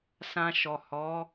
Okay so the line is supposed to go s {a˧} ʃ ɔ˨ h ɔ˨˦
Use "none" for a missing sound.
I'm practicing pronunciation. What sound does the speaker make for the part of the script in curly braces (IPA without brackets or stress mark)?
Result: ã˧